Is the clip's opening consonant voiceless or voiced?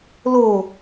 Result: voiced